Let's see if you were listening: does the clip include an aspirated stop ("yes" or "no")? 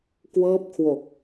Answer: yes